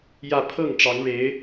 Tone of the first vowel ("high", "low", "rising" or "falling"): falling